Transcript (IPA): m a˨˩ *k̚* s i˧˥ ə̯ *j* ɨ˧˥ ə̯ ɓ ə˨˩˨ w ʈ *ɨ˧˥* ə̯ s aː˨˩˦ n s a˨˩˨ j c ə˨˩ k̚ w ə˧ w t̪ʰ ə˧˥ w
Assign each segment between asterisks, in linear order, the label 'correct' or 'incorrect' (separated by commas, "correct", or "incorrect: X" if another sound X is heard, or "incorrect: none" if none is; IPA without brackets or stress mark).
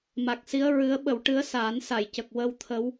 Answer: correct, incorrect: ɹ, correct